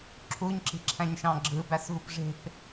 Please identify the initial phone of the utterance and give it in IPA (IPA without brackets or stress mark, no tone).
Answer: ǁʰ